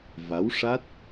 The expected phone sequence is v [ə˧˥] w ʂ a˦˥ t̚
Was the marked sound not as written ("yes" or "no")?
yes